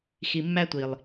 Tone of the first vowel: low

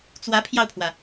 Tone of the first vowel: rising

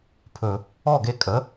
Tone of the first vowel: low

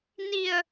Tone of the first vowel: low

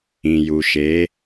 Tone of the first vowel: low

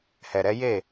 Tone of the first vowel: low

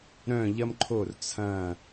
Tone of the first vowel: falling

